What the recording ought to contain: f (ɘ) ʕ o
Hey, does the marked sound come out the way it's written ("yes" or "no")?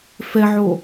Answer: no